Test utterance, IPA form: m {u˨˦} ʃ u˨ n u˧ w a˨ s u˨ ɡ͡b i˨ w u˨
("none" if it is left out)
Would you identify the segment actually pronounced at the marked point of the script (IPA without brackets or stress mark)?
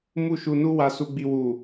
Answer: u˧